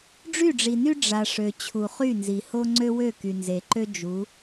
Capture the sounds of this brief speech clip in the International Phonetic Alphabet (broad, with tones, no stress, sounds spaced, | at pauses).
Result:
ɖ͡ʐ y˦˨ ɖ͡ʐ i˨ n y˦ ɖ͡ʐ a˨ ʂ ø˨ t͡ɕʰ u˨ χ y˦˨ n z i˨ h o˦ ŋ͡ǀ ø˦ w ø˦˨ k y˨ n z e˨ ǃ ø˦ d͡ʒ u˨˦